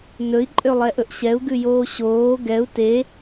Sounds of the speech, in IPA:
n ɵ i̯ ǃʼ ø lˠ ɛ ʔ ɵ ʔ ɕ ɛ u̯ ɡ ʉ j oː ɕ oː ɡ ɛ u̯ t e

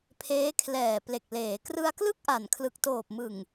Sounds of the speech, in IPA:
pʰ eː˦˥ kʰ l ɛː˨˩ p l e˨˩ k̚ l eː˩˦ k r ɯ˧ a̯ k l ɯ˥˩ k̚ ʔ a˨˩ n kʰ l ɯ˨˩ k̚ t oː˨˩ p̚ m ɯ˨˩ ŋ

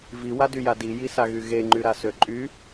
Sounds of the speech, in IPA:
v i w a d y j a d i j i s a ɣ y ɣ e ŋ͡ǃ y ɾ a s ø ǃʼ y

